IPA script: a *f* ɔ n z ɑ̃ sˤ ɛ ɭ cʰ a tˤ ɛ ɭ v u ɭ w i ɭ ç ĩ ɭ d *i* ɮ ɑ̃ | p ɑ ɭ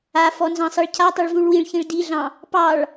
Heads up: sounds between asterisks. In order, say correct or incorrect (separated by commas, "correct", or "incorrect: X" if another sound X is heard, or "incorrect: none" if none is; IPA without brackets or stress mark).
correct, correct